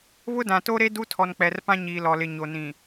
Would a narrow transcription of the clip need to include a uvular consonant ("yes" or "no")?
no